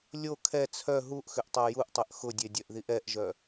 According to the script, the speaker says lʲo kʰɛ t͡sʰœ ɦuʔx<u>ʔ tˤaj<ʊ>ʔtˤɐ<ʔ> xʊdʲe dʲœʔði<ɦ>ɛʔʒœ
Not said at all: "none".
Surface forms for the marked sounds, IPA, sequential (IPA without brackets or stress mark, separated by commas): ʏ, u, ʔ, ʔ